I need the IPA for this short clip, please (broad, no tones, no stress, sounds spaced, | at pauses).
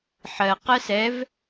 ħ ɜ q ɜ s ɛ v